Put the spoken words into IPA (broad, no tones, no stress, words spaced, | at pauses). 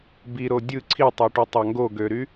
biɾo dʲɯ ǀʰitˤoʈutˤɑ ŋɡoɡøɾy